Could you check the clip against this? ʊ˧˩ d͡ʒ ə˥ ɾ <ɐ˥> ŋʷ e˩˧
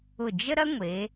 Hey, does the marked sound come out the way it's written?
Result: yes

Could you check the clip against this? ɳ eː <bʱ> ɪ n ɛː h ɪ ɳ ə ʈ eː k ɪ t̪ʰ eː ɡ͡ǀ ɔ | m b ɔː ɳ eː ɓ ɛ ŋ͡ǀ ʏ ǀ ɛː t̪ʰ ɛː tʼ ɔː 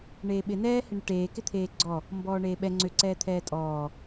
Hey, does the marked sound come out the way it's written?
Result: no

